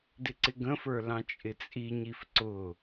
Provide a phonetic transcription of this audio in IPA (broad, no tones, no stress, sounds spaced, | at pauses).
d ɪ ǀ ɪ ɡ ə̃ f ə˞ l ɑ̃ t͡ʃʼ ɪ t͡sʼ i ɲ i f ǀ ʊ